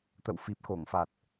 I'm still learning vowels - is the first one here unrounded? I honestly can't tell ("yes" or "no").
yes